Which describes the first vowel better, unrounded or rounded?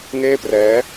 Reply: unrounded